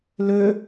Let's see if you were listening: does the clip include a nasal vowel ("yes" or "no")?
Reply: no